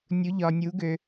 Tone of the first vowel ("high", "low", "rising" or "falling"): rising